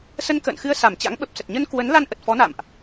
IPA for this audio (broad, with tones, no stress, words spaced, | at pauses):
sə˧nkə̰ː˧˨nxɨ˧ə̯ sa˧˩mt͡ɕa̰˧˥ŋ ɓə˨˩p̚sə˨˩t̚ɲə˧n kwə˨˦n la˧n ʔə˨˩t̚fɔ˨˦na̰˧˨mʔ